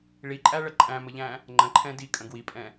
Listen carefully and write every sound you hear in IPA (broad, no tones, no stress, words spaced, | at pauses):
ɭiǃʼæɭə ǃʼæ̃məʎæ̃ | ŋ͡ǃə̃ǃʰɛ̃ dikʼə̃ ɡwipʼɛ̃